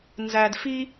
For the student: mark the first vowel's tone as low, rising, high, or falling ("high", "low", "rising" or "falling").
low